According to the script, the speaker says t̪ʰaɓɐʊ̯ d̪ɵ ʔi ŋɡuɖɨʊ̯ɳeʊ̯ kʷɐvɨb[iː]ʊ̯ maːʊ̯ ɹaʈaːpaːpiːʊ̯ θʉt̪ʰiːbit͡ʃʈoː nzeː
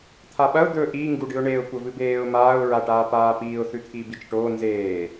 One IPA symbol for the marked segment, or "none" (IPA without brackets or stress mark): eː